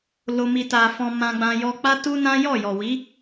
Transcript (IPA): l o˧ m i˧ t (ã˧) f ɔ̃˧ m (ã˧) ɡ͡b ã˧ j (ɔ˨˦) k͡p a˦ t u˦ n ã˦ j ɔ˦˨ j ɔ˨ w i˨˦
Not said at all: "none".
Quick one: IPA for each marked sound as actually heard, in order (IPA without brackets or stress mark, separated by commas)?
a˧, ã˧, ɔ˧